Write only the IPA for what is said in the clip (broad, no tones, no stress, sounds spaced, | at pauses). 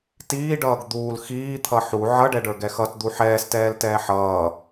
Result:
t iː ɖ ʌː ɡ d̪ uː l x iː t̪ʰ ʌ ħ u ʕ ʌ ɖ ɛ ɖ ə˞ ɡ ɛ x ʌ t d̪ u ħ ɛː s t ɛː l t ɛː ħ ʌː